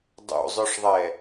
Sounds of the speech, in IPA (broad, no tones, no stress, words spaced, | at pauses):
dˤo̰zˤœʂðˤɛ